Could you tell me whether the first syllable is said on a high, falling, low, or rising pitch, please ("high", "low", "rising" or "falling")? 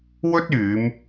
high